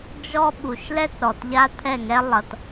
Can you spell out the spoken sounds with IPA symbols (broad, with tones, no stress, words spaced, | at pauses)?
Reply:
d͡ʒɔ˦ ɓu˨ʃlɛ˦tɾɔ˨t ʎa˦t̪ʰɛ˦˨ŋɛ˦ lˠʌ˨t